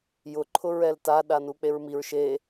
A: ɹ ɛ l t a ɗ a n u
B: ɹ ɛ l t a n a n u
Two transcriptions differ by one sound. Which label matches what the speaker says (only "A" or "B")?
A